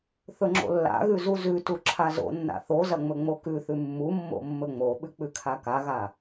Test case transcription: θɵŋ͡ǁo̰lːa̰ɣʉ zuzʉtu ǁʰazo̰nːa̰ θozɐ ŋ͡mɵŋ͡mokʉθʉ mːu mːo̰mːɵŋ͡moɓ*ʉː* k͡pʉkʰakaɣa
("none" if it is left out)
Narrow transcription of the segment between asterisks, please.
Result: ʉ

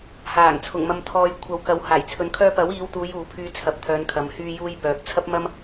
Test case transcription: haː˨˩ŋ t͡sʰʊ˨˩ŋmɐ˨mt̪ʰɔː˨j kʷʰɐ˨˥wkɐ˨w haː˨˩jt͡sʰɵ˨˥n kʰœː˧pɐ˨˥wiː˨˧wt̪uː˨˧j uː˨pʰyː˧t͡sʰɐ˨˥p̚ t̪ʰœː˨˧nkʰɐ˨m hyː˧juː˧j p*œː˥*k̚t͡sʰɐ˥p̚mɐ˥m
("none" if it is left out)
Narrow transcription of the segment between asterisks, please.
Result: œː˨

